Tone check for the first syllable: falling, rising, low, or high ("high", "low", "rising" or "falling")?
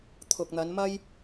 low